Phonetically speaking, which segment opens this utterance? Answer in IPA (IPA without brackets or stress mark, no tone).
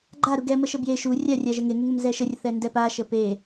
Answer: ɡ͡ǃ